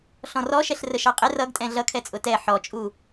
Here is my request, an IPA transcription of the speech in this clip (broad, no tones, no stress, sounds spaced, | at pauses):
ɬ ɔ̃ r ɔ ʃ ɛ ɬ r ə ʃ ɑ qʼ ɪ r ʌ ɡ tʼ ɛ̃ ɮ ʌ kʰ ɛ t͡sʼ ʊ t ɛ ħ ɔ t͡ʃʼ u